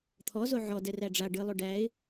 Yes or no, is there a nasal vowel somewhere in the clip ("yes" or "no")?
no